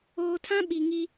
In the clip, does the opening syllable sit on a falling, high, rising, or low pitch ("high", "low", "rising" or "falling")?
low